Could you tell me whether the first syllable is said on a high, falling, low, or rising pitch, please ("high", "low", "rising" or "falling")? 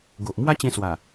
low